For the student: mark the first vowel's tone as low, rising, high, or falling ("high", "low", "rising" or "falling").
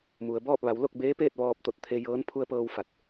low